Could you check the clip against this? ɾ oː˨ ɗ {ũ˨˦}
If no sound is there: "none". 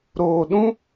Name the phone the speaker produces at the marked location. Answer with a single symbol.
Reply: ũ˦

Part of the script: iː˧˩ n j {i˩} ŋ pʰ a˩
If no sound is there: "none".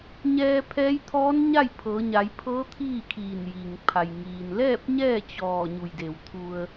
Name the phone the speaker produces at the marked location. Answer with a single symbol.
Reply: i˩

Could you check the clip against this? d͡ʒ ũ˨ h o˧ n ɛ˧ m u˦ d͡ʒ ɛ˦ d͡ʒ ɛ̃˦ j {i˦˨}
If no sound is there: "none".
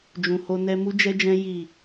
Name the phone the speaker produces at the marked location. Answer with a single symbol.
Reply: i˦˨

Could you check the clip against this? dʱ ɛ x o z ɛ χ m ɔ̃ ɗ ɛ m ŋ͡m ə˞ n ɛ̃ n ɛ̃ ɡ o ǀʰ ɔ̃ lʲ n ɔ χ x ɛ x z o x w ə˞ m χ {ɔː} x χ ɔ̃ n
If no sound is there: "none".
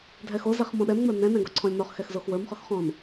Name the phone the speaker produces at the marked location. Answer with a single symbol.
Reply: ɔ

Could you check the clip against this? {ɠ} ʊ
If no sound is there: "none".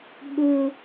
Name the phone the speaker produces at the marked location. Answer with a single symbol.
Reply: ɠ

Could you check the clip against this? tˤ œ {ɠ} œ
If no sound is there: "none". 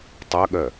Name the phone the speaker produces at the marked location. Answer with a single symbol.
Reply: ɠ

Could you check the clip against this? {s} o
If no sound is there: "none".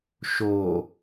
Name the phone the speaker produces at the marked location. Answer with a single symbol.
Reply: ʃ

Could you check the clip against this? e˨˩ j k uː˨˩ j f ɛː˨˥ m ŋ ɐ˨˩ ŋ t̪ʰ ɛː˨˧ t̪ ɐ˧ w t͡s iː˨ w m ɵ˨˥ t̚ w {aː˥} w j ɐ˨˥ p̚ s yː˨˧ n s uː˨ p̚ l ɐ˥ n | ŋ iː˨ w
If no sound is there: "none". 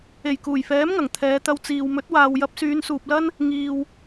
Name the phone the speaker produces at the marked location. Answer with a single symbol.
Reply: aː˨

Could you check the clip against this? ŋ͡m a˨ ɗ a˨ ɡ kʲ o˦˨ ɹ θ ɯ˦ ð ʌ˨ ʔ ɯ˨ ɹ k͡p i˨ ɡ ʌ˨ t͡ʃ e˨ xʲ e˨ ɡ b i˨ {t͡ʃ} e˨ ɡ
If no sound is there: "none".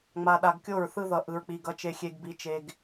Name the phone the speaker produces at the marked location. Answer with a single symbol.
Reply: t͡ʃ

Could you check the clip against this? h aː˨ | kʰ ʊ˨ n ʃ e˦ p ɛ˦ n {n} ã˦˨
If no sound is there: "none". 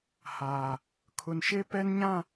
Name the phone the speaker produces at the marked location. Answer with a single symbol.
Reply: ɲ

